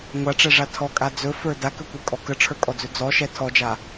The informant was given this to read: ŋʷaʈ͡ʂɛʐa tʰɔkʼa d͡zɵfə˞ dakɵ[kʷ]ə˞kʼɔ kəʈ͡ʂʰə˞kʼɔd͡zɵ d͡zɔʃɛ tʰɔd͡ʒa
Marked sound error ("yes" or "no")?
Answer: no